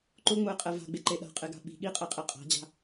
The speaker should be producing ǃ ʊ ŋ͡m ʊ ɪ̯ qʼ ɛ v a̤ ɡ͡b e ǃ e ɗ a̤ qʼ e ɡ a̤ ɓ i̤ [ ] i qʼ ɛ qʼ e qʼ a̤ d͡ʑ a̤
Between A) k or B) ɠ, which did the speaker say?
B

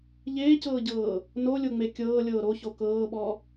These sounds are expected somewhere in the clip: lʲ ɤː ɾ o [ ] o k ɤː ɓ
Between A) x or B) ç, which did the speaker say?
B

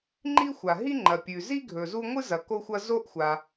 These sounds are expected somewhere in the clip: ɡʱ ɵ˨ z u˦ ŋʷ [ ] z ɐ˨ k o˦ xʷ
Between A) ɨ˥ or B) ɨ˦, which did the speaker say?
A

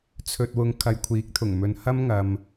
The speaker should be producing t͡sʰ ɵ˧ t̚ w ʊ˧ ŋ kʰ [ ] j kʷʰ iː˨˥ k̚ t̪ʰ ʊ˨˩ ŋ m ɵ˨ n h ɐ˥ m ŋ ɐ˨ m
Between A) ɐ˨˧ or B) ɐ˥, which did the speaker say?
A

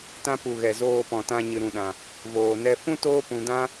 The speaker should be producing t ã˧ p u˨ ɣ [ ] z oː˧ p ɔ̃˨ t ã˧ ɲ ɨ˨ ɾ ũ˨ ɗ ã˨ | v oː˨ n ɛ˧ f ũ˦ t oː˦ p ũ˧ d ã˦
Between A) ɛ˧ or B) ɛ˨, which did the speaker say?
B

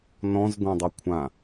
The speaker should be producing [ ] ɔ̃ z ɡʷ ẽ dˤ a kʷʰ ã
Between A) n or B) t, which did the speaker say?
A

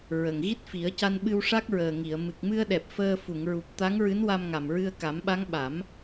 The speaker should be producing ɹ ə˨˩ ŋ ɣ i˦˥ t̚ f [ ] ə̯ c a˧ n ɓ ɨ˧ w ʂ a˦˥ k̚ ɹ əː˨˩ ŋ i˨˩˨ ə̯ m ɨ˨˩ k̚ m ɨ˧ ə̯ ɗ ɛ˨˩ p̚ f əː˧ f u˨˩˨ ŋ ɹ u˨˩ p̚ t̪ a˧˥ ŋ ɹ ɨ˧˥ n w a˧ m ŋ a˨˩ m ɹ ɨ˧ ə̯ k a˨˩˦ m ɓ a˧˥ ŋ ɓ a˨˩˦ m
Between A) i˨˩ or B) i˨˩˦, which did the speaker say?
B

